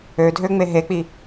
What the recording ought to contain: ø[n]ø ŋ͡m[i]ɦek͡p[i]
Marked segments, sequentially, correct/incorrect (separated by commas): incorrect, incorrect, correct